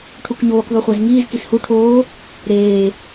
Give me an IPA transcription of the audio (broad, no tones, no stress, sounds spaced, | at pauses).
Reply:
ʈʰ u k ɲ oː k ðˤ u χʷ æ z ŋ iː z k i s h u ʈʰ oː | ɾ eː